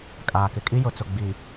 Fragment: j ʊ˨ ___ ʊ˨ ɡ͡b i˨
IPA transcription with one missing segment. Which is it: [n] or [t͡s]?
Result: t͡s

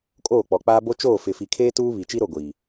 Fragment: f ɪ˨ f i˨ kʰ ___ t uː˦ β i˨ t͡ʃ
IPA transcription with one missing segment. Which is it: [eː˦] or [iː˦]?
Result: eː˦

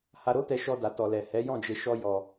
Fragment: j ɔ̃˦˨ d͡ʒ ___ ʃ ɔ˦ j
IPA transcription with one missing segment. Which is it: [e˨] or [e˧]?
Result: e˧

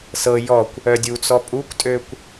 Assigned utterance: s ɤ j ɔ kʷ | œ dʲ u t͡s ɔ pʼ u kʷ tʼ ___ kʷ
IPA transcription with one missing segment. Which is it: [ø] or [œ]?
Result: ø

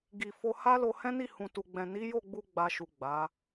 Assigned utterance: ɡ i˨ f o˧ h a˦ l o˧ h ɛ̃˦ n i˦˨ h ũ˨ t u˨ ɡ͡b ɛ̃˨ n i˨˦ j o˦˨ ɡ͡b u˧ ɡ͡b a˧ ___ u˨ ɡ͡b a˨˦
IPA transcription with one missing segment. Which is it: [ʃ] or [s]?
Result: ʃ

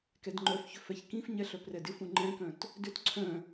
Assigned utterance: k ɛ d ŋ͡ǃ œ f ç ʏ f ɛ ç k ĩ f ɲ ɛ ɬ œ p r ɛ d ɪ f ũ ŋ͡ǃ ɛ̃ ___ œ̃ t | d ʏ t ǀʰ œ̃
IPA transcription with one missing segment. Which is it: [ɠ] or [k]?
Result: k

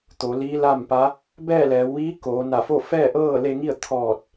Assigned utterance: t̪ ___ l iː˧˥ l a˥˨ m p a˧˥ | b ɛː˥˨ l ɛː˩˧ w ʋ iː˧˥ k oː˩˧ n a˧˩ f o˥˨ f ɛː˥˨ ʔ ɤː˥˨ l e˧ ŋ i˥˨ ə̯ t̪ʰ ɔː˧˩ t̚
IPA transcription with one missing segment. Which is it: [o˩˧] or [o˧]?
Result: o˩˧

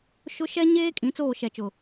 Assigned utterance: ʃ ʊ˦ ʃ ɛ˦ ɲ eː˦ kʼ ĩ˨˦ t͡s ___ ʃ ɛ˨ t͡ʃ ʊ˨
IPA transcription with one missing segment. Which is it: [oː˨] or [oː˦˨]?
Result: oː˦˨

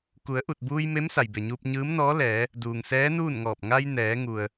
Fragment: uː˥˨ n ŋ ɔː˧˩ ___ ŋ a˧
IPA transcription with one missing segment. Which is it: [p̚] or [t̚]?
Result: p̚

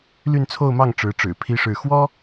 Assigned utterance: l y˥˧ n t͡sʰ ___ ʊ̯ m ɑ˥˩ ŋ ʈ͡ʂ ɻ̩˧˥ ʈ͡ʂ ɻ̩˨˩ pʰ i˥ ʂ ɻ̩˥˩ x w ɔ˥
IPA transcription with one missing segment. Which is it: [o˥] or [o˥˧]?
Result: o˥˧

